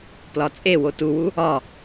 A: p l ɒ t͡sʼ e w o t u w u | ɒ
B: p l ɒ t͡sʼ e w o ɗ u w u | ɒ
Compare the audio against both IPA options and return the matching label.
A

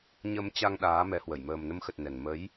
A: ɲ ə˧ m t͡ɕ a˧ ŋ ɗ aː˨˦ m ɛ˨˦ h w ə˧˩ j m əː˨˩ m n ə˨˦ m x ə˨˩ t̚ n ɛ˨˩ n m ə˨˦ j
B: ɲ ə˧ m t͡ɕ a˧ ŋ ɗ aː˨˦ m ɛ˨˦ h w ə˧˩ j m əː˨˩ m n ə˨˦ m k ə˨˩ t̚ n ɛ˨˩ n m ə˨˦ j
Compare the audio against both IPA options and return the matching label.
A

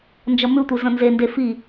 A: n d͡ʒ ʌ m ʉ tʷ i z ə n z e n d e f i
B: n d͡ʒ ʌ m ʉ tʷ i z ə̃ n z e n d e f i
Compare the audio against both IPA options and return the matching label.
B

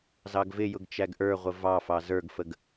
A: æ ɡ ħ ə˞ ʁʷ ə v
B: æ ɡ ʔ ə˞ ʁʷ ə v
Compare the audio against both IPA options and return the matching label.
B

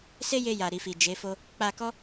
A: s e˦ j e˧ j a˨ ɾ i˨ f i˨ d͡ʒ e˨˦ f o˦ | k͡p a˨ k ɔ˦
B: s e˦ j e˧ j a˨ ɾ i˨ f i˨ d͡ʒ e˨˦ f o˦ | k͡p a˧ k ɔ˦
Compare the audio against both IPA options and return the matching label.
B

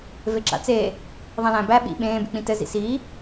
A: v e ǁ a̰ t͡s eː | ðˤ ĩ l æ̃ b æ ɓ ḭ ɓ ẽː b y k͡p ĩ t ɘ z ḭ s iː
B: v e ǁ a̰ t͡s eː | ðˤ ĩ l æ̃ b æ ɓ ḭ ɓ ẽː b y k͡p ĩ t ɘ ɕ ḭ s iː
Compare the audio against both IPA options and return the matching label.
A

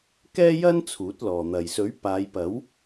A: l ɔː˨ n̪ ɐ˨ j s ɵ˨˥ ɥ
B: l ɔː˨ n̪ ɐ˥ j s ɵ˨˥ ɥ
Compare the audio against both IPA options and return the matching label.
A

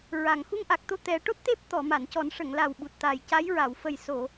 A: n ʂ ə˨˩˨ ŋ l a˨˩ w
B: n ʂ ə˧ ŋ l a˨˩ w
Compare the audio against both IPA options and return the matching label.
A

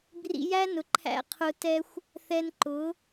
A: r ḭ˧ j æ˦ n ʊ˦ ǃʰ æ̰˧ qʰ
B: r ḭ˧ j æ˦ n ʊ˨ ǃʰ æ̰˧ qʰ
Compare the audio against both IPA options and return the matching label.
B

